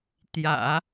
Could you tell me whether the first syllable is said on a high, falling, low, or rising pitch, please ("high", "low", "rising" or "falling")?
low